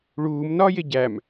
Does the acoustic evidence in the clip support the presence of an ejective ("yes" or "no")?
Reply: no